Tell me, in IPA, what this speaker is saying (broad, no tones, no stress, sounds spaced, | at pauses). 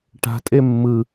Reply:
ʈ a̤ tʼ e mː ɯ